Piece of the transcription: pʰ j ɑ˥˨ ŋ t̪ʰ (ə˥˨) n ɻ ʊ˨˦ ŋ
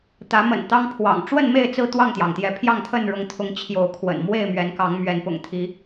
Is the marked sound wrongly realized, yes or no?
no